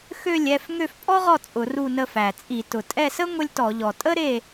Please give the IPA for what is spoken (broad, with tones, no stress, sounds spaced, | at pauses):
x ø˦˨ lʲ ɛ˦˨ f ŋ ø˦˨ f pʼ ɔ˥ ʁ ɔ˦˨ t͡sʼ ʊ˧˩˧ r u˦˨ n ə˦˨ f æ˩ t͡sʼ i˧˩˧ t ʊ˩ tʼ ɛ˦˨ s ə˥ ŋʷ ə˥ lʲ t ɔ˧˩˧ ʎ ɔ˩ tʼ ə˥ ɾ e˦˨